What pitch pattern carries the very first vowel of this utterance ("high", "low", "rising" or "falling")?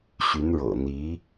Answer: rising